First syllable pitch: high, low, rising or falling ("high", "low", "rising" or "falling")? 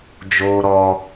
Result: high